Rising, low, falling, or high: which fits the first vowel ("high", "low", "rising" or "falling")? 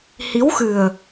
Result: rising